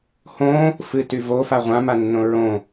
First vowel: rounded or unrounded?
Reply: rounded